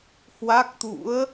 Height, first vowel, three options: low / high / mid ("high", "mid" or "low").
low